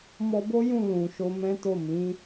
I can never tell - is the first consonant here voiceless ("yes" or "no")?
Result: no